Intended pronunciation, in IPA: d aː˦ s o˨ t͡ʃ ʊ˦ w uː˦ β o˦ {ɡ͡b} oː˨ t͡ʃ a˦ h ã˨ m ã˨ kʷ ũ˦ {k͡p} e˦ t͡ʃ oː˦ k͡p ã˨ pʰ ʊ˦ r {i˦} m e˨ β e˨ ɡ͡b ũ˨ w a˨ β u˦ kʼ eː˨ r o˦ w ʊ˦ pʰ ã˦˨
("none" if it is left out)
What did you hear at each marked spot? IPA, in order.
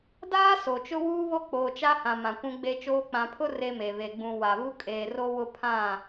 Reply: k͡p, ɡ͡b, e˦

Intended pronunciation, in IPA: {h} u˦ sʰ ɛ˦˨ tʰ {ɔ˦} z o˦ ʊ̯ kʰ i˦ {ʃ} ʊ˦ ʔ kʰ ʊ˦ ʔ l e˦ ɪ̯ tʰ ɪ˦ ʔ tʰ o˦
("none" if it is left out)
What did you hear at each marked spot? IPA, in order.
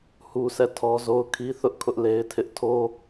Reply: h, ɔ˦, θ

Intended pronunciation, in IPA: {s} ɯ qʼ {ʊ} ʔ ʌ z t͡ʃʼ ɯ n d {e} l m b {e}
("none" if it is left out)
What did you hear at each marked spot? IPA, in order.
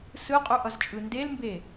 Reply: s, u, e, e

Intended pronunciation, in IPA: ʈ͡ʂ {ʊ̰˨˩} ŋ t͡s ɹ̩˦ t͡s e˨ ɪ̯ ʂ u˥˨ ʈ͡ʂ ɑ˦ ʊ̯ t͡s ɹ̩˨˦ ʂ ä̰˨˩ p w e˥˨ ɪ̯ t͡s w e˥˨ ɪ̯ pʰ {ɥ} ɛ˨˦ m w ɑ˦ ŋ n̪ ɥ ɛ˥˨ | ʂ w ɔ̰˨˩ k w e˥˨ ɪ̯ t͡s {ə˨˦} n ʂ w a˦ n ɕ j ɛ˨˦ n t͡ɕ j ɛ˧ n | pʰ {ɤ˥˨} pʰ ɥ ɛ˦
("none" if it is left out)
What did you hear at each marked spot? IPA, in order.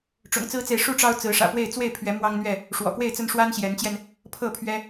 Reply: ʊ̰˨˩, ɥ, ə˦, ɤ˥˨

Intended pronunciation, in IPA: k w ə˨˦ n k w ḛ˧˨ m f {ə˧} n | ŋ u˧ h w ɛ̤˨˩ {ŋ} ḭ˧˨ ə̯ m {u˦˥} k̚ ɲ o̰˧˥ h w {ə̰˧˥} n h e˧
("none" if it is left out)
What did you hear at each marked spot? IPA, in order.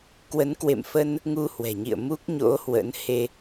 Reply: ə˧, ɲ, u˦˥, ə̰˧˥

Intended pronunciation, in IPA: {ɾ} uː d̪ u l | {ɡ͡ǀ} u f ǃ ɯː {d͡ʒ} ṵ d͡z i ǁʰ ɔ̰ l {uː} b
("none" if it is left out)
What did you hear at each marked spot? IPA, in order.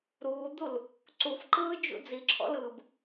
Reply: ɾ, ǀ, d͡ʒ, ɯː

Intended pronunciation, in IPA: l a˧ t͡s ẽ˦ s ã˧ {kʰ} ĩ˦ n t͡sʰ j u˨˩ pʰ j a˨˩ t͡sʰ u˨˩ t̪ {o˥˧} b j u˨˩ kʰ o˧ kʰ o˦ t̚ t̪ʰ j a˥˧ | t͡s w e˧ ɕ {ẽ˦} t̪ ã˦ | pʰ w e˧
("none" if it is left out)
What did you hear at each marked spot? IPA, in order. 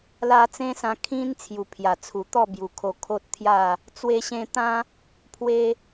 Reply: kʰ, ɔ˥˧, ẽ˧

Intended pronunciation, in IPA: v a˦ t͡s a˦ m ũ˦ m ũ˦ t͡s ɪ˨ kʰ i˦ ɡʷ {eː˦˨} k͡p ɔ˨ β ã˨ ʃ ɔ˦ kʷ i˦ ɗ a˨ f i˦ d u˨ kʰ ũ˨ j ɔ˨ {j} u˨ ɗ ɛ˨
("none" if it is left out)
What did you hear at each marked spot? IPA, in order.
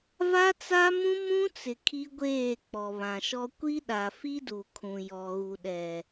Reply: eː˦˨, ɣ

